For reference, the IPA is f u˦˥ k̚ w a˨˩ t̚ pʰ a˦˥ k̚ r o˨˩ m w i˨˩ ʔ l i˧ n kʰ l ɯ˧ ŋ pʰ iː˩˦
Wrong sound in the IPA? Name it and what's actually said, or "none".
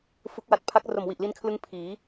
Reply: none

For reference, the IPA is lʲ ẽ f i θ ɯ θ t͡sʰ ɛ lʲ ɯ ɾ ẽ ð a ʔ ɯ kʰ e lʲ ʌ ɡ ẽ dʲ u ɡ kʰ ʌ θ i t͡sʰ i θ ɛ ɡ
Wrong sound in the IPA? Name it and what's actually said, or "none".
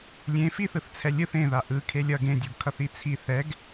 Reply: ɾ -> θ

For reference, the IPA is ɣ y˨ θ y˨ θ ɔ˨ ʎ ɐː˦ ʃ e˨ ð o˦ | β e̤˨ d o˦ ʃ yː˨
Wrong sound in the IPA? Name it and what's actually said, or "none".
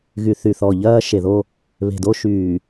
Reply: none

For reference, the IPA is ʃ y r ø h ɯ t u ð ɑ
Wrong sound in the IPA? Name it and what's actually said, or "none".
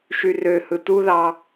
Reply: none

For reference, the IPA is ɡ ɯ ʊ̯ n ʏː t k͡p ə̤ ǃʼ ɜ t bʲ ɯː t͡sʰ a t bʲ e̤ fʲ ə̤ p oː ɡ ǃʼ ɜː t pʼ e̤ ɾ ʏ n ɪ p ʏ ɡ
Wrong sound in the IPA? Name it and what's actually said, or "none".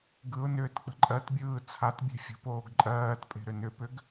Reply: ɪ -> ʏ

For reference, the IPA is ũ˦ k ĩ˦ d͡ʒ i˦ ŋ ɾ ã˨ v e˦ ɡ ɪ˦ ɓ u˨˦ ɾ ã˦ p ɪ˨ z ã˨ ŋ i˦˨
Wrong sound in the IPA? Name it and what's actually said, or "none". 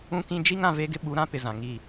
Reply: none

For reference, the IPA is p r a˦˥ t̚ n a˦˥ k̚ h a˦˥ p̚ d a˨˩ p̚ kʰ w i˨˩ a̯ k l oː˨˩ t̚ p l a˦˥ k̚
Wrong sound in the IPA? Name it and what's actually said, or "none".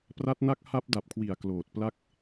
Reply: none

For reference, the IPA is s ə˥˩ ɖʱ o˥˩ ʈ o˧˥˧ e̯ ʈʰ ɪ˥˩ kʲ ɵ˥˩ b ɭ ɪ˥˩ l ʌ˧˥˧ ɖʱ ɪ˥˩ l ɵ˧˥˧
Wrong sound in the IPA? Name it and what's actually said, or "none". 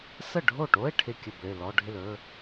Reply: ʌ˧˥˧ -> ɔ˧˥˧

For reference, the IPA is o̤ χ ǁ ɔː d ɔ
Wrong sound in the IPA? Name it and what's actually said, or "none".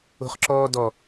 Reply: none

